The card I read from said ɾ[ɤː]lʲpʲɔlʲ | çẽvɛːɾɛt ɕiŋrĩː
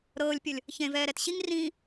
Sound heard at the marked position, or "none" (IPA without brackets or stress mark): ɤː